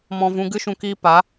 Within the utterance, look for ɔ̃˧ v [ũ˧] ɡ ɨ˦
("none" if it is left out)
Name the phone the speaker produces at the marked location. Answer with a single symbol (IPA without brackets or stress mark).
ũ˧